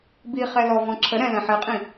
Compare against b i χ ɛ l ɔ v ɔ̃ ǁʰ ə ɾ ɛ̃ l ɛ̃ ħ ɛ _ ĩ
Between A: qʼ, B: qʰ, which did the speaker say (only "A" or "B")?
A